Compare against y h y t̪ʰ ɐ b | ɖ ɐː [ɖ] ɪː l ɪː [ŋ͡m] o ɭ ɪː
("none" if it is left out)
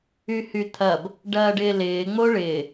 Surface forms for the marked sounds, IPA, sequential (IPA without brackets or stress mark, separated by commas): ɖ, ŋ͡m